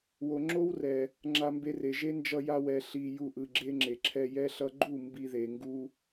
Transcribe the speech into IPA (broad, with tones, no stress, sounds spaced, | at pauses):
w o˨ ŋ͡ǁ o˦ w r ɛ˨ | ŋ͡ǁ a˧ m b e˧ r e˨ ʒ e˧ n d͡ʒ ʌ˧ j a˧ w ɛ˨ ɬ i˨ j u˧ ʔ ɯ˨ ɡ͡ǁ e˦ ŋ͡ǁ e˨ ǁʰ ɛ˧ j ɛ˦ ɬ ʌ˦ ɡ͡ǃ u˦˨ m b i˧ ð e˨ ŋ ɡ u˧